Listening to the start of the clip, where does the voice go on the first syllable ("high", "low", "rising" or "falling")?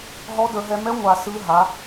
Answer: rising